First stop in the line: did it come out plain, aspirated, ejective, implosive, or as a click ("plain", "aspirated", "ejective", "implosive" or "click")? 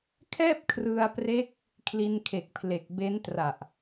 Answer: aspirated